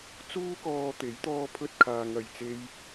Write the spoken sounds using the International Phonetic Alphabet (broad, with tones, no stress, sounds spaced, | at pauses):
t͡s uː˥ k ɔː˧ t̪ e˨˥ j t̪ ɔː˧ pʰ ɵ˧ t̚ kʰ aː˨ ŋ ɐ˨ j t͡s e˧ j